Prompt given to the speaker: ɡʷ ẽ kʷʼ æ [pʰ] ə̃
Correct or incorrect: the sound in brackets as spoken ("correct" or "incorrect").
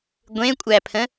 correct